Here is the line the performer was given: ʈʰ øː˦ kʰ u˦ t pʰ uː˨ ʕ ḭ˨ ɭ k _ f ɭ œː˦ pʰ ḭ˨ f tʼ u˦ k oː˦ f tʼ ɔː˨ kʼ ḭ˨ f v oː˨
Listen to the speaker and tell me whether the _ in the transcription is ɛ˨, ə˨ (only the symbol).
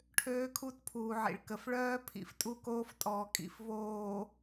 ə˨